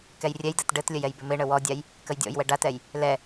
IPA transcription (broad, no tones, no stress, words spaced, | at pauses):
kɛjrʲɛjdɛt ɖɘtlʲəj ɛjbɪmɪɳə wɔdʲaj | kəjdʲɔ̰jwɛ ɖatɛj | lɛ